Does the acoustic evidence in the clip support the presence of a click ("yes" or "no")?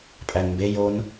no